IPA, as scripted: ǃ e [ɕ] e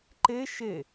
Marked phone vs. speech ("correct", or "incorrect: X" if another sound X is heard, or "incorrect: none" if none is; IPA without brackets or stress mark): incorrect: ʃ